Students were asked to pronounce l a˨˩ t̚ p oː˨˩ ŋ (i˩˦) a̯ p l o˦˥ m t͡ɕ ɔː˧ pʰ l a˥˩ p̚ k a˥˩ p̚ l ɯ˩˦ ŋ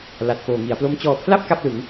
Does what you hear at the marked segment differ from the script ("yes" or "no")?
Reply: no